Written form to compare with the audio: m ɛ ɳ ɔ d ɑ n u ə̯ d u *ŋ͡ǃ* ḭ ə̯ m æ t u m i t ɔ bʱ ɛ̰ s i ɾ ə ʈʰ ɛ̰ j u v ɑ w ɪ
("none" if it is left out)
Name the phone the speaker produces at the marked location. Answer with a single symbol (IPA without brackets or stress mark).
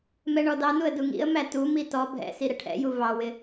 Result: ŋ